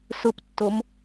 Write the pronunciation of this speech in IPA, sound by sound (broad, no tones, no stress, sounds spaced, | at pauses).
s ʊ p tː o m